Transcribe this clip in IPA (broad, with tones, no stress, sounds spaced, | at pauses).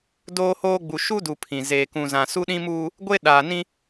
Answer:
d oː˦ h oː˦ ɡ͡b u˨ ʃ u˦ d u˨ pʰ ĩ˨ z eː˨ k ũ˨ z ã˨ s u˦ ɗ ĩ˦ m uː˦ | ɡʷ e˦ ɗ aː˨ n ĩ˦